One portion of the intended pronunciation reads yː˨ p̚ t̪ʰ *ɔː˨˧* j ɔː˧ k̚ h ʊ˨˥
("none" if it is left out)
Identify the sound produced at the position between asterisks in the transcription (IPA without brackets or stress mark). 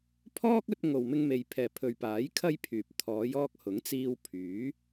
ɔː˨˧